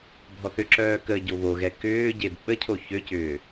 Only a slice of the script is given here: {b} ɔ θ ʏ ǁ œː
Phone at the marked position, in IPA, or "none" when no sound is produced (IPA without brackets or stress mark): bʱ